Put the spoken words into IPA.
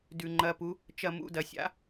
d ʉ˧˩˧ ŋ͡ǃ ɐ˧˥˧ p u˨˥ | t͡ʃ ɐ˦˨ m ṵ˧˥˧ d ɐ˧˩˧ sʲ a̰˨˥

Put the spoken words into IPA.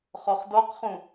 χ ɔ χ d ɔ q χ ũ

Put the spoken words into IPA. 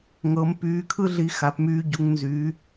ŋ ɤ˨˦ m p yː˨˦ kʰ ɯ˦ ɮ i˨˦ x a˨˦ p m yː˦ ɟ u˨˦ ŋ n z yː˨˦

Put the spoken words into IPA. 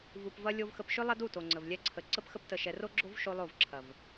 v u˨ p v ɐ˧ lʲ o˧ v x ə˧ p ʃ ʏ˦ lˠ ɐ˦ d u˦˨ t o˨ ŋ͡ǀ ə˨ v lʲ ɛ˦ ǀʰ ə˧ ǀ ə˦ p x ə˦ p t ə˧ ʃ ɛ˧ r o˦ ɡ͡ǁ o˦ v ʃ o˦ lˠ o˦˨ v ǁʰ ɐ˨ v

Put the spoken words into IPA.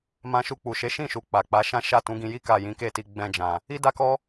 m ã˧ ʃ u˧ k͡p u˨ ʃ e˨˦ ʃ ĩ˦˨ ʃ u˨ k͡p a˨ k͡p a˨˦ ʃ ã˦ ʃ a˦˨ t ũ˨˦ ɡ ĩ˧ j i˦ k a˦˨ j ĩ˨˦ k e˦˨ t i˧ ɡ͡b ɛ̃˧ d͡ʒ ã˨ | i˦ d a˦ k ɔ˦

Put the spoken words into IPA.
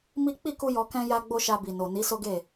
m i˦ k͡p i˦˨ k u˧ j ɔ˧ k ɛ̃˦ j a˦ ɡ͡b o˦ ʃ a˧ b i˨ n o˨ n i˨˦ s o˦ ɡ e˦˨

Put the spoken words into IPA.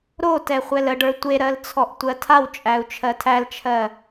ɾ o t ɛ χʷ ɛ l ə ɖ ə˞ tʷ e ɾ ɜ l t͡sʰ ɔ ʔ tʷ ɜ tʰ a w t͡ʃʼ æ u̯ t͡ʃʰ ɜ tʰ æ l t͡ʃʰ ɜ

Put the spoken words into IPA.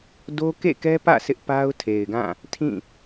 d o˦ k ḛ˦˨ k ɛ˦ p ä̰˦˨ sʰ ɪ˦ ʔ p a˦ ʊ̯ tʰ e˨ ɪ̯ ɡ ã˦˨ | tʰ ĩ˦˨

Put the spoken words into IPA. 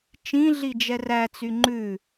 t͡ʃ ĩ ɮ i d͡ʒ ɛ r æ t͡s y ŋ͡ǃ ʉ

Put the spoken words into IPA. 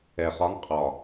ɛ˨˩ χ ɒ˧˥ ŋ qʼ ɒ˨˩

